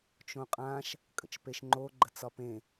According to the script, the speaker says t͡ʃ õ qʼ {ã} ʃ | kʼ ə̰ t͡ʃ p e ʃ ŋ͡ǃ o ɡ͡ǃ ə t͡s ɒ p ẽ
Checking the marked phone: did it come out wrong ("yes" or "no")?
no